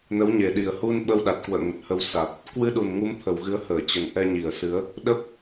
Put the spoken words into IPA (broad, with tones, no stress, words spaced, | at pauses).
nə˨˦wɲe˨˩ɗi˨˩ə̯ hu˧n ɓə˧wɗa˨˩t̚kwə̰ː˧˨ ŋə˨˩t̚hə˧w sa˨˩t̚ | kwɨ˧ɗu˨˩nŋu˨˦m t̪ʰə˨˩wɣɨ˨˦ə̯həː˧˩ t͡ɕə˨˩nʔɛ˧ɲi˧˩ə̯sɨ˨˦ə̯ | ɗə˦˥p̚